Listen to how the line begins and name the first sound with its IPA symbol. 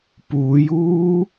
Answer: p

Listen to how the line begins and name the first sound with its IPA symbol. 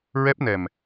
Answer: ɹ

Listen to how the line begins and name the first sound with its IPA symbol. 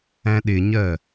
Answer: æ̃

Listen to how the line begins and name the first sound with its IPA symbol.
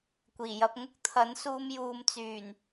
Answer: kʷ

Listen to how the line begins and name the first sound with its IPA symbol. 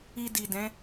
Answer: i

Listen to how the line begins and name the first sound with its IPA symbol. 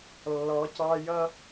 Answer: lː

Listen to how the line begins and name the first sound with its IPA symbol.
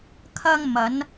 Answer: kʰ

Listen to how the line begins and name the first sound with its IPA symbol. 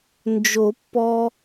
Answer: n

